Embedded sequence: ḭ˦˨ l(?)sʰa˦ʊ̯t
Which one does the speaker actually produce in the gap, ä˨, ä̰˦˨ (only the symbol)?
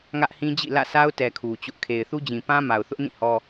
ä̰˦˨